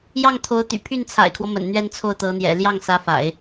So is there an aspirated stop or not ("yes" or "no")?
yes